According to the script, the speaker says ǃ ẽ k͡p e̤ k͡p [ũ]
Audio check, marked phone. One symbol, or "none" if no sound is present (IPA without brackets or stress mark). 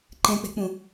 ũ